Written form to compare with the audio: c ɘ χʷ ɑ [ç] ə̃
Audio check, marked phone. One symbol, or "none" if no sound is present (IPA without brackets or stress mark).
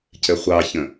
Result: ç